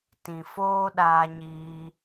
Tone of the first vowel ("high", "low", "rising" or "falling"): low